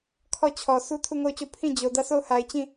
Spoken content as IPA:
kʰ ɔ˦˨ t͡ɕʰ ɔ˨ s u˦ tʰ u˦˨ ŋ o˦˨ ʊ̯ t͡ɕ o˦˨ pʰ ĩ˦˨ d͡ʑ o˨ d ä˦˨ s o˦˨ ʊ̯ h a˨ ɪ̯ t͡ɕ ĩ˦˨

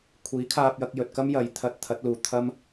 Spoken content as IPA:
kʷʰ iː˨˥ kʰ aː˧ p̚ j ɐ˧ k̚ j ɵ˨ t̚ k ɐ˥ m j ɐ˨˥ j t̪ʰ ɐ˨˥ t̚ t̪ʰ ɐ˨˥ t̚ l uː˨ t̪ʰ ɐ˥ m

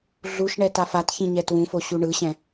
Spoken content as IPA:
ɮ u ʃ ɳ ɛ t a f a t ç ĩ ɲ ɛ t w ũ f o ɕ u ɳ ɯ ɕ ɛ̃

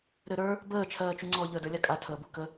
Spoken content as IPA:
ɾ ɘ ɾ ə˞ | b əː t͡ʃʰ ɜː t͡ʃ u ŋ͡ǀ ɔ ʎ əː d ə˞ lʲ a kʼ a tʰ əː b u k ə

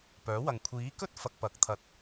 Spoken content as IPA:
p œː˨˥ w ɐ˨ ŋ kʷʰ iː˨˥ k ɵ˥ t̚ f ɐ˧ k̚ p ɐ˨˥ k̚ t̪ʰ ɐ˨ t̚

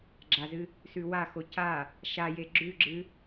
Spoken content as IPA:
ɡ͡ǁ a z ɨ | s ʉ w a x o c a | ʃ a j e ɡ͡ǁ ʉ ɡ͡ǁ ɨ

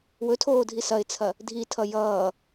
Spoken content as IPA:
w ɵ tʰ oː dʱ i s ɐ ɪ̯ t͡sʰ ɐ | dʱ i tʰ ʌ j ʌː

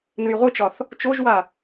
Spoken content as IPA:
n ɨ j ʁʷ ɨ t͡ʃ ɒ θ | t͡ʃ o ʒ w a

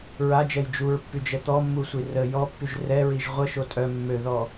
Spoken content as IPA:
ɹ a d͡ʒ ɛ j d͡ʒ u ɹ pː y d͡ʒ ɛ t̪ ɔ mː u sʷ i r ə j ɔ pː y ʒ r ɛ ɹ i ʒ ʁʷ ə ʃ o tʼ œ mː ø ð ɔ

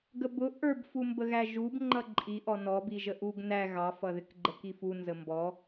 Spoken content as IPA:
ɡ ə b ʊ ʔ ə˞ b f u m b ə ɣ æ ʒ u b ŋ͡ǃ ʌ ǃʼ i ʔ ɔ n ɔ b i ʒ ə ʔ u ɡ n æ ɣ ɑ f ʌ ð ɪ k ɡ͡ǃ ə k i f u n z ə m b ɔ

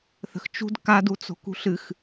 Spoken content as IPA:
θ ə̤ x t͡ʃ ṳ d k a d u t͡s o̤ k ṳ ɬ ɨ x

